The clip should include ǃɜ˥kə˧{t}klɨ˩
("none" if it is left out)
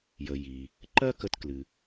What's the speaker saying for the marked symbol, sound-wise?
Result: t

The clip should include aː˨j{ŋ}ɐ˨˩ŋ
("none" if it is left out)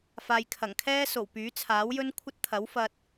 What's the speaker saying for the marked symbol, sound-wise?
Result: kʰ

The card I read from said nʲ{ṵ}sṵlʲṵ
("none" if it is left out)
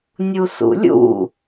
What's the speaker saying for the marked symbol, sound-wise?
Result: u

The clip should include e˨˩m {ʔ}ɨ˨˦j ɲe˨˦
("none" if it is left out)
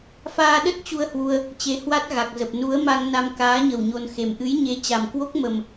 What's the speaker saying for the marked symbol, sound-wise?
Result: ʔ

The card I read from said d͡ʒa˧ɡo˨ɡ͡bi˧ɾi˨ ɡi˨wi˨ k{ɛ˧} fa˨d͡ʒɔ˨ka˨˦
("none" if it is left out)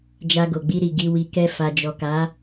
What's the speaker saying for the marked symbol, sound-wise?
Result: ɛ˧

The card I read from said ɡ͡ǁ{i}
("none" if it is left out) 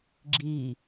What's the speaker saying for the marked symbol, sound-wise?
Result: i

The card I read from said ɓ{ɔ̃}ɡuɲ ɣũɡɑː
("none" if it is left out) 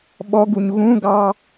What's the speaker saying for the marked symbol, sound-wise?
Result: ɔ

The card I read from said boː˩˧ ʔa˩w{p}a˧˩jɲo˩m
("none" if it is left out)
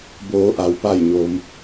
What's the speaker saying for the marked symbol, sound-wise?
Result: p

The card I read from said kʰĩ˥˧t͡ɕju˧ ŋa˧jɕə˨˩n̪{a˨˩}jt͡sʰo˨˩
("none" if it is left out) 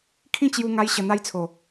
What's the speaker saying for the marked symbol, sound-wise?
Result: a˧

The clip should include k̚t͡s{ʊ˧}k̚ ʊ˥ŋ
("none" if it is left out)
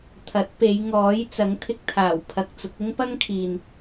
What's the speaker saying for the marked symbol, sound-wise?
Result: ʊ˨˥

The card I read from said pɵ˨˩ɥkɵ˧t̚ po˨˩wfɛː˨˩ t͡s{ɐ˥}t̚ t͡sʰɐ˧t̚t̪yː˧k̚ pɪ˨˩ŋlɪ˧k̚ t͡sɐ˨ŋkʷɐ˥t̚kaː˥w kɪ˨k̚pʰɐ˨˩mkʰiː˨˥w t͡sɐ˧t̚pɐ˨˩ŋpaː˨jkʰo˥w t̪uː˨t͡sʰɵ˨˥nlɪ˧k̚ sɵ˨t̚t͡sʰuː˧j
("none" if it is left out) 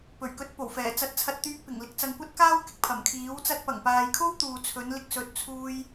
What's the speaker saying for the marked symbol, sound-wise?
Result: ɐ˧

